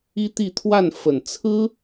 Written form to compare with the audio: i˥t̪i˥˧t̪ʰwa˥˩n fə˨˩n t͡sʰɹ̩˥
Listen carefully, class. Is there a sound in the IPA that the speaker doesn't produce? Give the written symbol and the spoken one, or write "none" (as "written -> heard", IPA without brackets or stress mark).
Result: none